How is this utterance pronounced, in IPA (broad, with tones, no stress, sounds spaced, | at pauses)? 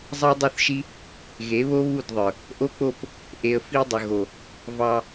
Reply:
zˤ ɑ˦ dˤ ʊ˦˨ θ ʃ i˦ | ɣ e˨˦ β o˦ β u˦˨ d ðˤ ə˞˨ | ʔ o˦ k͡p o˦˨ p | ʔ e˨ ə̯ f i˧ dˤ ə˨ ɣ o˨ | v ɑ˧